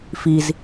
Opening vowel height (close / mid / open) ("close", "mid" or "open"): close